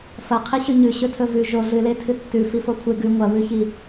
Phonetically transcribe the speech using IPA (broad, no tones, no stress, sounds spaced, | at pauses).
f ɐ qʰ i ɕ ʉ ɲ ʉ ɕ ɵ tʰ ɵ v ʉ ʒ o ɮ ɨ l e tʰ ɨ tː ʉ f i f o kʷʰ e ɡ ʉ ŋʷ ɐ β ʉ ç i